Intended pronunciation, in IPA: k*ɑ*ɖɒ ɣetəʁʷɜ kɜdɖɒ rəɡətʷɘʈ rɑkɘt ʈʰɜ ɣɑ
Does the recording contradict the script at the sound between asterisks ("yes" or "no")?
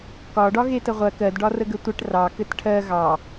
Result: yes